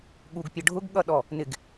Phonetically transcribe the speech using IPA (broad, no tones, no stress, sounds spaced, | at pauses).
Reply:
ɠ u ɡ pʲ ʌ ɖʱ ʊ ɡ ɠ ʌ ɗ ɔ | n ɪ ɡ